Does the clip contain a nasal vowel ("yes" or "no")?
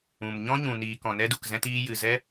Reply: yes